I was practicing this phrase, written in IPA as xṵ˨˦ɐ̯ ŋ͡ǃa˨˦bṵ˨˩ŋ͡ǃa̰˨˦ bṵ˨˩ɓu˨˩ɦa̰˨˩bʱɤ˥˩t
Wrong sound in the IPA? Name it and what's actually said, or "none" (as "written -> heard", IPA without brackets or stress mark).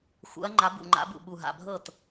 none